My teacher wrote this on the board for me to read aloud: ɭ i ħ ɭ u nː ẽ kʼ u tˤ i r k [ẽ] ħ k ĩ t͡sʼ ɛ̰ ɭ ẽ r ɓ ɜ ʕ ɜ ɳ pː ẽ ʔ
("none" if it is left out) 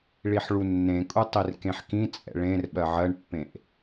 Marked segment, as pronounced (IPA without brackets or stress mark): ẽ